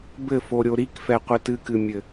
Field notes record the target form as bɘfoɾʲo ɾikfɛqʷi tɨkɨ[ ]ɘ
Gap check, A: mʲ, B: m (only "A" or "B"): A